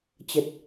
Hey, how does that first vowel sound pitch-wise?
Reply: low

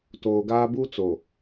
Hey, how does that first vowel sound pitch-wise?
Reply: low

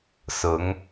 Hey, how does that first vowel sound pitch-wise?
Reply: rising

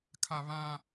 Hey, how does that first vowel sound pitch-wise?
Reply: high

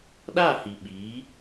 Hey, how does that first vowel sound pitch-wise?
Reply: falling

